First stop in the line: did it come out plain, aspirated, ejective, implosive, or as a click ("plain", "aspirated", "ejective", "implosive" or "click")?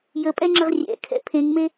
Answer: ejective